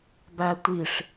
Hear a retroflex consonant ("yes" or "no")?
yes